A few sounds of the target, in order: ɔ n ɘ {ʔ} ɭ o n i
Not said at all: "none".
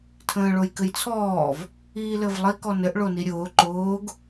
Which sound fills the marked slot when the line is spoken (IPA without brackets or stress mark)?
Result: ʔ